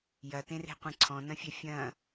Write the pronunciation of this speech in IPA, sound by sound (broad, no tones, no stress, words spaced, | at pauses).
jɐtẽre̤qʷẽ ǀʰɔ̃nɐ̃fʲɛ fʲɐ̃